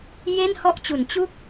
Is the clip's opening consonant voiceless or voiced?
voiced